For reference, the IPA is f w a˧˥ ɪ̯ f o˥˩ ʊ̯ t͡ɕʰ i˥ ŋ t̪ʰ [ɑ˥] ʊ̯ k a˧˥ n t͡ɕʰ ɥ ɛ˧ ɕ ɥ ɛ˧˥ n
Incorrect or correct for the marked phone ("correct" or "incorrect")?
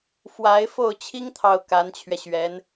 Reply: incorrect